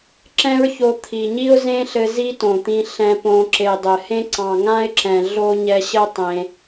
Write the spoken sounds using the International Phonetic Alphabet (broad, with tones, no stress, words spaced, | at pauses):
ǁɛ̃˦ɹço˧ t̪ʰi˨ ɲi˦ʊ̯zẽ˦ɬɘ˧ zi˦tõ˨t̪ĩ˧ ɬɛ̃˧põ˧ ǁe˨dˤɘ˨hẽ˦ ǀɑ̃˨ŋã˦ɪ̯ǁɛ̃˨ ɮo˦ ɲɛ˧ɕɘ˦ tˤẽ˧